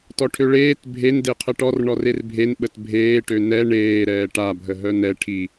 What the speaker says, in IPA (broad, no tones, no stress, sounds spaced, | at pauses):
t ɔ ʈʰ ø ɭ eː t bʱ e n d e qʰ ə ʈ ɔ r ɳ ɔ r e r bʱ e n ɓ ə t bʱ eː ʈ ø n ɛ ɳ eː ɾ ɛː ʈ a bʱ ə ɦ œ n ɛ ʈʰ i